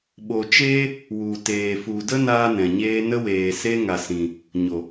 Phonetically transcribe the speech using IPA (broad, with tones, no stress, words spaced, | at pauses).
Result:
ɓo˨t͡ʃeː˦ | wu˨teː˨ fu˨ də˦naː˧ nɛ̃˨ɲeː˦ nə˦weː˨se˦ ŋa˨sĩ˨ | ɲo˨